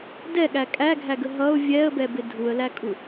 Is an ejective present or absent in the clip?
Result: present